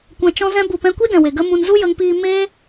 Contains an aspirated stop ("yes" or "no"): no